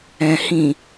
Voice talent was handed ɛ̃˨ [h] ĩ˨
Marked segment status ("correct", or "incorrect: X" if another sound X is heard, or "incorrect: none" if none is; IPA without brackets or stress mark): correct